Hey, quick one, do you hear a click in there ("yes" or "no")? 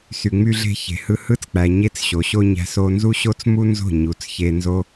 no